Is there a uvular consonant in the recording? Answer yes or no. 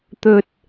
no